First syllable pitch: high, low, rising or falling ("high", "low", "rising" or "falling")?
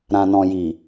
low